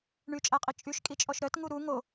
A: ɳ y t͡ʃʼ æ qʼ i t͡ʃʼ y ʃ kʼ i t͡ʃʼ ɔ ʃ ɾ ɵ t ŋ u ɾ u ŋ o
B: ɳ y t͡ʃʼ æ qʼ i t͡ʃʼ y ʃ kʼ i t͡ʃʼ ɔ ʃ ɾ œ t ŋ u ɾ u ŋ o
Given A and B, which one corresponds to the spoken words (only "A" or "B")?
B